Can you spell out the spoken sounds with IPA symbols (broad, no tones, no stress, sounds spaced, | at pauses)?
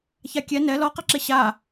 ç a kʲ ɛ n ɛ l ɔ q ɛ ǁ e ɕ a